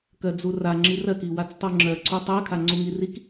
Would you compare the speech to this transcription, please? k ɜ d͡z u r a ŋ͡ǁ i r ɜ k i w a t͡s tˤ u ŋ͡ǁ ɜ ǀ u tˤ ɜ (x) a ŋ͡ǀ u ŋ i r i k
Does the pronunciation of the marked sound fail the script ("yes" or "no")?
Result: yes